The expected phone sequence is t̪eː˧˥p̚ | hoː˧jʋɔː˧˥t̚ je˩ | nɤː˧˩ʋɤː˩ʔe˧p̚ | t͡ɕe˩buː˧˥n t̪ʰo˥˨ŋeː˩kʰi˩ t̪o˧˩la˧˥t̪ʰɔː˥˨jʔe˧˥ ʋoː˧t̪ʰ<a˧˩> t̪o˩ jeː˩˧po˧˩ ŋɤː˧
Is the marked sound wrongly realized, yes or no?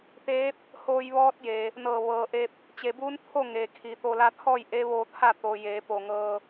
yes